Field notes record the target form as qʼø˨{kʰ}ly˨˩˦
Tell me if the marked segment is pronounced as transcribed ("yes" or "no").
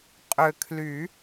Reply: yes